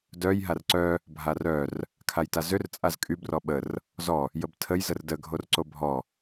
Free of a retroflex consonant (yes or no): yes